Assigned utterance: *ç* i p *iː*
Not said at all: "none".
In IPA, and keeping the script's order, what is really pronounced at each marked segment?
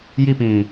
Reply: j, ĩː

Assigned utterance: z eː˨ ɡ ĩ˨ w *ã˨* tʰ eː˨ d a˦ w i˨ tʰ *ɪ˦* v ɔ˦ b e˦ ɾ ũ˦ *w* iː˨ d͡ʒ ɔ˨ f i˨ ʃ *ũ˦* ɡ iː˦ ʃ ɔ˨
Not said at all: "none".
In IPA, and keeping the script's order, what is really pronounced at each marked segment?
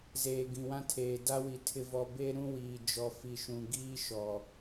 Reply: ã˦, ɪ˦, w, ũ˨

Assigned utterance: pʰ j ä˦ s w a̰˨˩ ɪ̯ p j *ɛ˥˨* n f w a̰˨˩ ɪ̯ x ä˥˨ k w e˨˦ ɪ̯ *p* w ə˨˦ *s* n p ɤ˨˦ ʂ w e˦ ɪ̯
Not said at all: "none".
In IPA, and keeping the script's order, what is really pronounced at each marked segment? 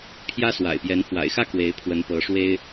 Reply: ɛ˨˦, pʰ, none

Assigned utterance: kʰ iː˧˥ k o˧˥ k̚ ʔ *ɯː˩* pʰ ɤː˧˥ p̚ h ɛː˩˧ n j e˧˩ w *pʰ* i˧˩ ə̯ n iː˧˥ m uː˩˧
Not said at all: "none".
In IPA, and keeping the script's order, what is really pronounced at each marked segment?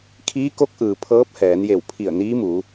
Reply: ɯː˩, pʰ

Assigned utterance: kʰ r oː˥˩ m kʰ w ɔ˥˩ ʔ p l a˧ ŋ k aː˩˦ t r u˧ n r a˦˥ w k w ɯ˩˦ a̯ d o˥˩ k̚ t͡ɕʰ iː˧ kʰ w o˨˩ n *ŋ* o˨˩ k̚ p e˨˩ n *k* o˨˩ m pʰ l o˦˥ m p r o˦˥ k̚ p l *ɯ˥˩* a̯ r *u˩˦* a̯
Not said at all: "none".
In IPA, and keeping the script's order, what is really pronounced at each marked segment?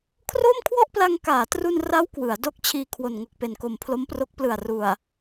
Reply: ŋ, k, ɯ˨˩, u˨˩

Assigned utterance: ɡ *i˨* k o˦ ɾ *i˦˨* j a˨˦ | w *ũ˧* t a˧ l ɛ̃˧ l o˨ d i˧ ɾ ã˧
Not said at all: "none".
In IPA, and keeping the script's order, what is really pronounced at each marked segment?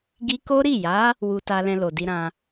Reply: i˧, i˦˨, u˧

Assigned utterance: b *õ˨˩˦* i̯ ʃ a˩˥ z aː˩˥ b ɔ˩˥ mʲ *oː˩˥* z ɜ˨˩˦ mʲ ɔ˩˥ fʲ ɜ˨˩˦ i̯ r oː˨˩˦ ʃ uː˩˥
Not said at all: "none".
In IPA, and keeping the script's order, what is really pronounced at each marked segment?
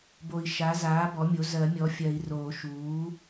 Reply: o˨˩˦, o˩˥

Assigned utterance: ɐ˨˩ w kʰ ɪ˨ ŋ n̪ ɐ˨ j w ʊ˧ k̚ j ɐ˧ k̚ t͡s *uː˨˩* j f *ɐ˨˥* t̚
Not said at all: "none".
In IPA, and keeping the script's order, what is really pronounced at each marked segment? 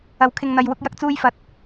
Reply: uː˧, ɐ˨˥

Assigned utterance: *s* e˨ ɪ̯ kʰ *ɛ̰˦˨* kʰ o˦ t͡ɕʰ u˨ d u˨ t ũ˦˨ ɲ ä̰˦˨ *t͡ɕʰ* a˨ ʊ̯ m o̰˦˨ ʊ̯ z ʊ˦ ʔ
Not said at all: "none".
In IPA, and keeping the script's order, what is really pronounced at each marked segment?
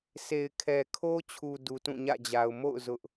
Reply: s, ɛ˨, d͡ʑ

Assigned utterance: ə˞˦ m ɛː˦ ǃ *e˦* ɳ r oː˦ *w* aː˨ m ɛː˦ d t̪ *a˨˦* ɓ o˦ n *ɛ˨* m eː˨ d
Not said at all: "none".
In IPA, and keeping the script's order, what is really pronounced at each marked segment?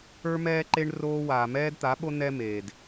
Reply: e˦, w, a˨˦, ɛ˦

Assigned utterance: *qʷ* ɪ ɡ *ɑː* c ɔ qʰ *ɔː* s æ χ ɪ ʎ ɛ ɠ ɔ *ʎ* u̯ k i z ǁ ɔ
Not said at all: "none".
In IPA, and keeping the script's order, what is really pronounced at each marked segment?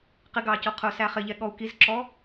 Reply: q, ɑː, ʊː, none

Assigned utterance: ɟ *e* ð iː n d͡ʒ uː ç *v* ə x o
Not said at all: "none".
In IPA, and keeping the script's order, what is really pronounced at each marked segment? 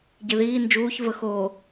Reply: e, v

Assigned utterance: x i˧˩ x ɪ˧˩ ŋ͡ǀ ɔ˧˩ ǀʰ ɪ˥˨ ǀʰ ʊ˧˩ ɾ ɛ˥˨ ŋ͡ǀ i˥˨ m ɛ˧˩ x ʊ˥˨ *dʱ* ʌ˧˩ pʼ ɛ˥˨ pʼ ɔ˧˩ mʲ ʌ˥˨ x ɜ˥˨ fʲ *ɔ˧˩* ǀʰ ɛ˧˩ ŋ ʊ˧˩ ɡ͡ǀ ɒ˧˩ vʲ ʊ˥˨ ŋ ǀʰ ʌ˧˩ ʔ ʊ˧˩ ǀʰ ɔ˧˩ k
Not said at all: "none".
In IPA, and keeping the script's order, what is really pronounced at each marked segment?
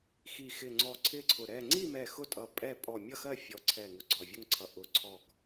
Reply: tʼ, ɔ˧˩

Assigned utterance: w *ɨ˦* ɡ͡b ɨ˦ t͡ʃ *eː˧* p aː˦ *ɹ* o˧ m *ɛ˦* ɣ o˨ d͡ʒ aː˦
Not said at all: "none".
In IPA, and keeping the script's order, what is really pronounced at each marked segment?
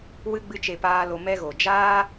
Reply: ɨ˦, e˧, l, ɛ˦

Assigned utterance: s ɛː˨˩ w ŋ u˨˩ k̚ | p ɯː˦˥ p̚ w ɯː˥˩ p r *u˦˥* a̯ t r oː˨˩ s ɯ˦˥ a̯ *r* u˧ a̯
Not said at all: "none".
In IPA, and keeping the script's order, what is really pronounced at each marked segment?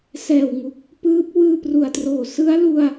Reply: u˨˩, l

